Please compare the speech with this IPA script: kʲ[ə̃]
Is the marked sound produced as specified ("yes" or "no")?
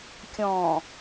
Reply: no